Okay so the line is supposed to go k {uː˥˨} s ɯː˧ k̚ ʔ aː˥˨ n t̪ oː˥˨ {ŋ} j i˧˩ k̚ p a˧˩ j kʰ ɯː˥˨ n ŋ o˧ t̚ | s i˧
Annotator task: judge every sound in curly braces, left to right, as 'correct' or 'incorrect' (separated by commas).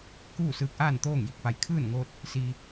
correct, correct